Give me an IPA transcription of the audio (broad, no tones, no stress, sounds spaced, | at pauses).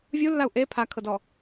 vʲ u lː a u̯ ʔ e pʰ a kʰ ɤ d ɔ